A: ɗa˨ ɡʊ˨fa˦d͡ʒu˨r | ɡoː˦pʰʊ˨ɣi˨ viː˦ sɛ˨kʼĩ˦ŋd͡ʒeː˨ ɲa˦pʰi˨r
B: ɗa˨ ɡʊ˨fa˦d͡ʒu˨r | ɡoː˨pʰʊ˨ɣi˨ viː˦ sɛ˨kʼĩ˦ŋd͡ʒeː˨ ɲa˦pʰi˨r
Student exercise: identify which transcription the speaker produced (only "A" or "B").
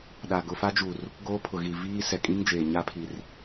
A